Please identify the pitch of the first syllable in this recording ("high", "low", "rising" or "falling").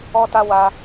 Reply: high